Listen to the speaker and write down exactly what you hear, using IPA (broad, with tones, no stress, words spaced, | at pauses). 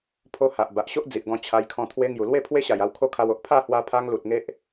pʰo˧ ha˨ʔ ba˨ʔɕo˦ʔd͡zi˨ʔɡɔ̃˧ t͡ɕʰa˧jkʰɔ̃˧ t̪ʰwe˧ ŋju˨˩lwe˥˧ pʰwe˦ɕa˨˩ja˧w kʰo˦kʰa˧wo˨ʔ pʰa˥˧hwa˧pʰa˧ŋ lu˨t̚ŋe˦ʔ